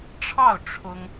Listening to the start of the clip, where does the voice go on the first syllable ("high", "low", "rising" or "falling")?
falling